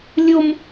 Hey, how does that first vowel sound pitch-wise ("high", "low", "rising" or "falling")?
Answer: high